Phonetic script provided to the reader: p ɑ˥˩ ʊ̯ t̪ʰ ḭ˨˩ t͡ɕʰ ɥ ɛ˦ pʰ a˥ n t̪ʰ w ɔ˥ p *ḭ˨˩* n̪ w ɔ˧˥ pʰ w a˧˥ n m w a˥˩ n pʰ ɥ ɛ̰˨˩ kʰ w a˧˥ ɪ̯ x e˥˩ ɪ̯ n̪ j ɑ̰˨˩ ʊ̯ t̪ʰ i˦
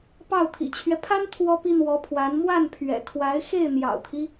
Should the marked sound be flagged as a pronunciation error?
yes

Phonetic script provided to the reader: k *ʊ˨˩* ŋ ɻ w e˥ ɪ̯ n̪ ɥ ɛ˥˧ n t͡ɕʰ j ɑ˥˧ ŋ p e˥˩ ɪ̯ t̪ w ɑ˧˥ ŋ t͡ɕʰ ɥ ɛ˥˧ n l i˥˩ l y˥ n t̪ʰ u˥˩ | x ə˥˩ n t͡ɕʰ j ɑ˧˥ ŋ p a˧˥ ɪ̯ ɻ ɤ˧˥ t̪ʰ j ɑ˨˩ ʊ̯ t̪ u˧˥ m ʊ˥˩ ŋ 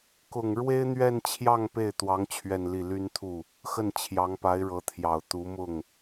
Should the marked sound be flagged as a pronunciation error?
no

